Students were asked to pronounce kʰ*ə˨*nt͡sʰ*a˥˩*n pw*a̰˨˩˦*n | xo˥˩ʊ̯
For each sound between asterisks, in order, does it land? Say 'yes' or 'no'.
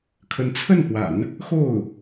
no, no, yes

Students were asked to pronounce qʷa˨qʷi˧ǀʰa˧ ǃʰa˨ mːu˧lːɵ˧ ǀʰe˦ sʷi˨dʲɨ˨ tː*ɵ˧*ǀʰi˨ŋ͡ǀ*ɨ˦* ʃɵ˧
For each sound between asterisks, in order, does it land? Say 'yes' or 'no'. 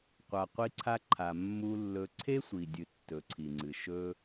no, no

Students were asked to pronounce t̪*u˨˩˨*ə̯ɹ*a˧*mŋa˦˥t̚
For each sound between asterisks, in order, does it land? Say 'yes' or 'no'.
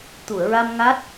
yes, yes

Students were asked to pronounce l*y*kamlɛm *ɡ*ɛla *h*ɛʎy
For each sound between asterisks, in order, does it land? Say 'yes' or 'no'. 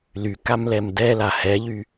yes, no, yes

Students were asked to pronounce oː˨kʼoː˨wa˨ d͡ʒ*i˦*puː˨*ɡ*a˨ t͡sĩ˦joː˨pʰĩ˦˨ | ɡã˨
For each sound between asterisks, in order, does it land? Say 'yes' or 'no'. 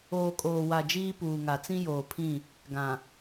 no, no

